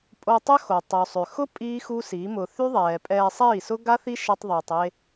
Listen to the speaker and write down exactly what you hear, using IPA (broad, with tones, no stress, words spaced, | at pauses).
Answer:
pʼo˧tˤœ˦xo˨ tˤɪ˨u̯sˤø˨xʊ˦ pʼiː˦xu˦si˨˦mʊ˧ θy˦ðˤɛː˨pʼɛː˧ sˤiː˦˨sʊ˦ɡa˦θi˦ ʃɛ˦tˤðˤiː˧tˤ e˧